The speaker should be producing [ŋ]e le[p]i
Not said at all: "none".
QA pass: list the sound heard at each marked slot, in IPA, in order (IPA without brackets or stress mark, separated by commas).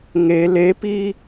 ŋ, p